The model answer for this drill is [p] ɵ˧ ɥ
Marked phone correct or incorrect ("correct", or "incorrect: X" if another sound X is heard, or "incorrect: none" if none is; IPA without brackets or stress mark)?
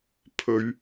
incorrect: pʰ